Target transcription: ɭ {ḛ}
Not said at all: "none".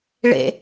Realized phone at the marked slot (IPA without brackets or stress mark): ḛ